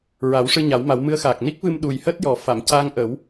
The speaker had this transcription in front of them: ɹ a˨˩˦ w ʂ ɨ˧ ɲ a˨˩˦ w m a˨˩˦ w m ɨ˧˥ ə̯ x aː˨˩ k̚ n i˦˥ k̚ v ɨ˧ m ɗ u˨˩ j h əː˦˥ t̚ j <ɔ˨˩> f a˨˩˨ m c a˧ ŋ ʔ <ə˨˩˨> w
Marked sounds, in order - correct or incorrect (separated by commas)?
correct, incorrect